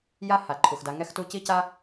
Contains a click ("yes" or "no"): yes